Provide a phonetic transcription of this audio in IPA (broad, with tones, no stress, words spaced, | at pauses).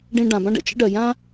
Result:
ɖĩ˧ ɖã˩bã˥ɖ ə̰˧t͡ʃə̰˥ɖɜ˩ jã˥